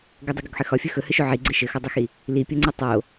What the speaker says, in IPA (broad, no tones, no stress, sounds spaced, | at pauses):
ɡ ɵ dˤ ɘ ɡ o ɡ ħ ɘ x ɒ fʲ ɵ x ɵ h ɘ ʃ o ʕ i ɡ͡ǀ ɘ ʃ ɘ x ɒ dˤ ɵ x i | l i pʲ o ŋ͡ǀ ɘ tˤ o